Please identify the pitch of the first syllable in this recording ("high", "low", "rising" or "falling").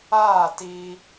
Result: falling